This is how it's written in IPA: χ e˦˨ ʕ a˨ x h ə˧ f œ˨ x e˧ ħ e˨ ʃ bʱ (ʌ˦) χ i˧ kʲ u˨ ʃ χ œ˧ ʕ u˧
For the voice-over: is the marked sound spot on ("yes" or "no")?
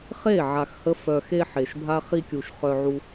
no